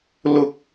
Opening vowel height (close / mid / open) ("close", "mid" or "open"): close